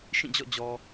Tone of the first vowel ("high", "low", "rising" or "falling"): falling